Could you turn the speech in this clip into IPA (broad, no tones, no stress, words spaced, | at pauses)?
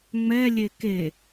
ŋ͡mɛlʲe ke